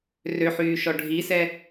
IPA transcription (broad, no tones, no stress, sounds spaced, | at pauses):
r ø ħ yː ʃ ɔ ɖʱ i s ɛ